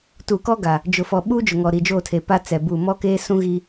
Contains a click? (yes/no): no